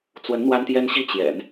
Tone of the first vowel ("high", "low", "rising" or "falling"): rising